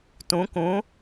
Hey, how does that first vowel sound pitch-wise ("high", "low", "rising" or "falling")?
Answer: rising